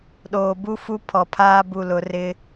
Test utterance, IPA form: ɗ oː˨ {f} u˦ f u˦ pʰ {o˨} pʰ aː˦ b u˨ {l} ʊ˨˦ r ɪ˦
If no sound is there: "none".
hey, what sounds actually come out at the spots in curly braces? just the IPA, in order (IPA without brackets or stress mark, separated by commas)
b, ɔ˨, l